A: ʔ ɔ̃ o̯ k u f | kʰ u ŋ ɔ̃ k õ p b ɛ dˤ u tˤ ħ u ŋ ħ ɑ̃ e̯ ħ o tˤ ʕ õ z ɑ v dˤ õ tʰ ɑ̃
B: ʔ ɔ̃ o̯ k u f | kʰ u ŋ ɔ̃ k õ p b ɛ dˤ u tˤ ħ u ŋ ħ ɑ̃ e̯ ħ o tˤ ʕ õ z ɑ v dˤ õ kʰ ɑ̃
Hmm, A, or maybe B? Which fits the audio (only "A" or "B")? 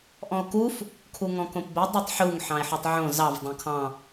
B